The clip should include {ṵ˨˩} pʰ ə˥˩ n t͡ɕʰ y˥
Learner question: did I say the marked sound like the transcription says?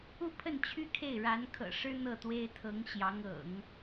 no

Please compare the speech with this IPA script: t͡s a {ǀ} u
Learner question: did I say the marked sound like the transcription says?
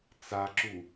no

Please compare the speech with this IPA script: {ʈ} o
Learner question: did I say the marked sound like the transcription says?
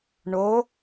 no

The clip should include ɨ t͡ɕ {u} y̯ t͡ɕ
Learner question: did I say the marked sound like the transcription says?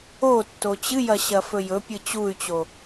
yes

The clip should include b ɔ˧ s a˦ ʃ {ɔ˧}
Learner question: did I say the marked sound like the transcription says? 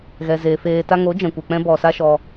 yes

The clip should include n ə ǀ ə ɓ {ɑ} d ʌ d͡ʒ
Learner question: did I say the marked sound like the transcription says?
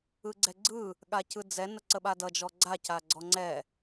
no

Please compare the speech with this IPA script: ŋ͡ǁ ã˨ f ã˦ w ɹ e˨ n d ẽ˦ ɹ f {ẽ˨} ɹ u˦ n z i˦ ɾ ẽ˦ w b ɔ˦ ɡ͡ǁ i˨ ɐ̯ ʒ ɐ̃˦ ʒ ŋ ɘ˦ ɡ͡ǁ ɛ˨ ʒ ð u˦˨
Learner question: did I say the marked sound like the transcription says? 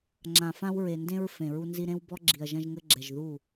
yes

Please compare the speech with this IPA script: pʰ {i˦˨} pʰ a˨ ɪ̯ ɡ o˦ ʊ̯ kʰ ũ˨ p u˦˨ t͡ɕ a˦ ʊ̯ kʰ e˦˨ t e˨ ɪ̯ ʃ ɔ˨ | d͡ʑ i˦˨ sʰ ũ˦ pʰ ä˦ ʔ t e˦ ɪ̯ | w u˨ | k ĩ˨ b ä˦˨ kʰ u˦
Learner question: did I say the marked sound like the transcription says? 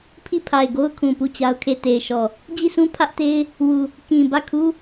yes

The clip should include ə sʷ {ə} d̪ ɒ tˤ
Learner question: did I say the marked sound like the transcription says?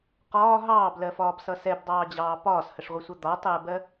no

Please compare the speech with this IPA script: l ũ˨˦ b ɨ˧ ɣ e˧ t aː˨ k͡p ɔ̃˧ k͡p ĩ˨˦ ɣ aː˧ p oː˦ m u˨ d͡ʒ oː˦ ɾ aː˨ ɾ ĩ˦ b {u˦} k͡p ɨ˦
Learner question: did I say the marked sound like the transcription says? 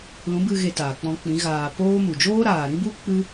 yes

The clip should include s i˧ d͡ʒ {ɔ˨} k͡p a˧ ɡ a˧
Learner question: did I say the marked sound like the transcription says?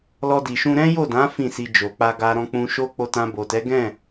no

